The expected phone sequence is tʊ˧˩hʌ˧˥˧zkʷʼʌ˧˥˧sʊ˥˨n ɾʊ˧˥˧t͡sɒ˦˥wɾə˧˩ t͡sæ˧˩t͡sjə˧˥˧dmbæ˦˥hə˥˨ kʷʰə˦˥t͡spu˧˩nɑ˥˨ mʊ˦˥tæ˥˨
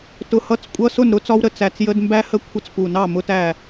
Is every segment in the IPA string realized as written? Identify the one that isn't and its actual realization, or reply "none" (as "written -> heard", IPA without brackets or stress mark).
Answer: z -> t͡s